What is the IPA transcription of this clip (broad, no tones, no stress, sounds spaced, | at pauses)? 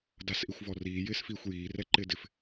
d a s ʔ i xʷ v ɔ r iː j ɪː s f iː xʷ j iː r ɛ ǃ ɪː d ɪ f